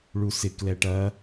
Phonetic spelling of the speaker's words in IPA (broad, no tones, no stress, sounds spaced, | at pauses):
ɭ u s ɪ k l ɛ ʈ ɐ